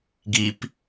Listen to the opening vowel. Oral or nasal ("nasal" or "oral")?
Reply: oral